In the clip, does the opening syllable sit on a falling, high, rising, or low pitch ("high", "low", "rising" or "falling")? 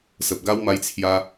low